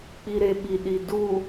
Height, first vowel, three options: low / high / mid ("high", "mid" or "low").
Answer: high